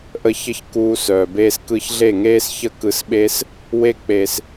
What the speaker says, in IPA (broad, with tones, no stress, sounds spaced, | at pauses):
ʔ ə˦ ç ə˦ ç k uː˧ s œː˨ b eː˧ s k ɯ˧ ç ɮ e˦˨ ŋ eː˦ s ç ə˦ k ɯ˧ s ɓ e˦ s | w e˦ k͡p e˧ s